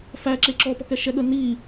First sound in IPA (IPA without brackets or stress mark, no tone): f